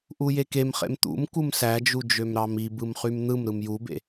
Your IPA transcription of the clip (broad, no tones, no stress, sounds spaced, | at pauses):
ʔ u j e k e m χ ḛ m t̪ ṵ m k u m s æ d͡ʒ u d͡ʒ ø m ɾ ɑ m i b ɯ m χ y m n̪ ɯ m ɾ ɯ m j u b ḛ